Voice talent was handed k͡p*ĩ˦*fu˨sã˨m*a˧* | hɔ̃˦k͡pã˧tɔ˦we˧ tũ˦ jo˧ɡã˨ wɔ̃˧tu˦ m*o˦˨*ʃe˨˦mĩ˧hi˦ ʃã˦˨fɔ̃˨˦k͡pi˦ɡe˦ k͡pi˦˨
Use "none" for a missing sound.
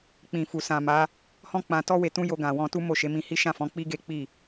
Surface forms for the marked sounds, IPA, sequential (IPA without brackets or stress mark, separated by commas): ĩ˨, a˨˦, o˦˨